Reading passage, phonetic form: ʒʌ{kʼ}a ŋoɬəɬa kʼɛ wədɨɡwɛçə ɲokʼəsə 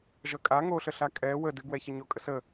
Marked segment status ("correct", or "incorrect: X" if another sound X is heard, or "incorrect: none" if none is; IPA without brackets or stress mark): correct